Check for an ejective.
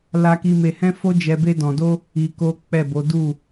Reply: absent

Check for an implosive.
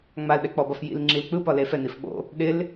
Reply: present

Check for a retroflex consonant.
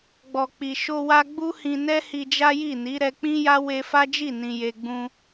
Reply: absent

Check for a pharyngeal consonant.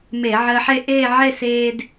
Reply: present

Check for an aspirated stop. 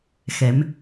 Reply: absent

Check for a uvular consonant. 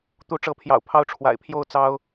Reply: absent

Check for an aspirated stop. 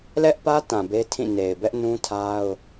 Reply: present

